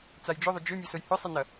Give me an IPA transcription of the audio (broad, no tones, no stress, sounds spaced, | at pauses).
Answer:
t͡s a j d͡ʒ ʏ ðˤ ʏ d͡ʒ ʏ mʲ ɛ s ʊ j h ʏ sˤ i n ɐ